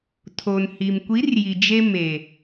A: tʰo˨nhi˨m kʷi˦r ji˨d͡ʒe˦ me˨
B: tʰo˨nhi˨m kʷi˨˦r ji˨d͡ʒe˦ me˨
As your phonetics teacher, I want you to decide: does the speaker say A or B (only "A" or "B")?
B